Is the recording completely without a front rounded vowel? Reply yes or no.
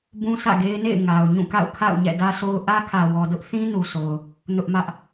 yes